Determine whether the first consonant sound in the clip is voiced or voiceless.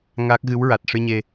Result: voiced